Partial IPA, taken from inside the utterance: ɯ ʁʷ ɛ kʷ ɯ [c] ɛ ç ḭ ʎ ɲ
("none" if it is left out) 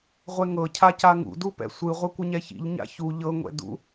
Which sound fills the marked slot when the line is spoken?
ɲ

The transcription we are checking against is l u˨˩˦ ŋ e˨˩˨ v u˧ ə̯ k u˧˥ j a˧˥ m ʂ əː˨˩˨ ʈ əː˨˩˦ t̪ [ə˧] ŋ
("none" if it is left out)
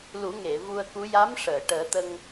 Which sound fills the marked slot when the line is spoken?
ə˧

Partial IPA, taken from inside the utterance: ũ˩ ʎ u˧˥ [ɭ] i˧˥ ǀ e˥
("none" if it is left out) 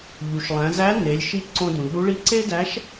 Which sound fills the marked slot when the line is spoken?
ɭ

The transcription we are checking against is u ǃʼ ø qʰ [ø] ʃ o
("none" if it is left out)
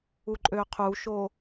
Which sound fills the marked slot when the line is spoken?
u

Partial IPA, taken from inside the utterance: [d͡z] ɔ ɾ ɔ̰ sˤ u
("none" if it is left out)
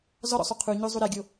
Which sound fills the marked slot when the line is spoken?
z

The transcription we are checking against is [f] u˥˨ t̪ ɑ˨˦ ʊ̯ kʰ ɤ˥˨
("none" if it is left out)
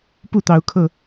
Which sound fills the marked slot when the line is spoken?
p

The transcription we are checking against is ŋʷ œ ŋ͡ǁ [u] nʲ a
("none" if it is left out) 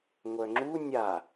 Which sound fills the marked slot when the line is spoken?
u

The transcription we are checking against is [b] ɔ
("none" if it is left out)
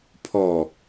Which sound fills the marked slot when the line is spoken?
pʰ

